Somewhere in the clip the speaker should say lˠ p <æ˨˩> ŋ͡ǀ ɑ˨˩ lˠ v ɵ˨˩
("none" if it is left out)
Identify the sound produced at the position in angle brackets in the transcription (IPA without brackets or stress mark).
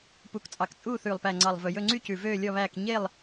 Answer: æ˨˩